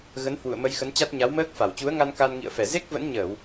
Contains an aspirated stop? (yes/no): no